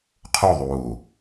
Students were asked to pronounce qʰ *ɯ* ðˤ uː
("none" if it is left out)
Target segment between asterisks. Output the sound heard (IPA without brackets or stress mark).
u